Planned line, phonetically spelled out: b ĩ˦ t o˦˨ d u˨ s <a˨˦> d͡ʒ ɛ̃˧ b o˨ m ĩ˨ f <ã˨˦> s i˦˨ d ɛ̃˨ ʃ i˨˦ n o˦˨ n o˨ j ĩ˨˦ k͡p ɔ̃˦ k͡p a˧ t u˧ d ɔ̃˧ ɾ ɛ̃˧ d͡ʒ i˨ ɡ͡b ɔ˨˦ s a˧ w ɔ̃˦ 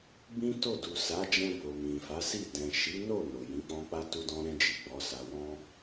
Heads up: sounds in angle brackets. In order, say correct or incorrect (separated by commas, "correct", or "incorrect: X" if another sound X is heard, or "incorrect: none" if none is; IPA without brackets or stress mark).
correct, incorrect: a˨˦